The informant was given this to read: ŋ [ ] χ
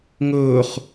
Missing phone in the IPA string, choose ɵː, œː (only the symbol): ɵː